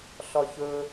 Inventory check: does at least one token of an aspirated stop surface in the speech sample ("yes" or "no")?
no